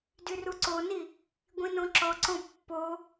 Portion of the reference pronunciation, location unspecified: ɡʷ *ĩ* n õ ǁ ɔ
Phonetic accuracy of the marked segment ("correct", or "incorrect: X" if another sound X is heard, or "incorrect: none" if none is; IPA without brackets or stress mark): correct